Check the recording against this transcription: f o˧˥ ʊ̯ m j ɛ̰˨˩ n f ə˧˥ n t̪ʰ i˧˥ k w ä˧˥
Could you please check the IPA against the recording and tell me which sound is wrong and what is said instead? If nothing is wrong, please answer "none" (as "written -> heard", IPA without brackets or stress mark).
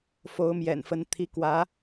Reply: none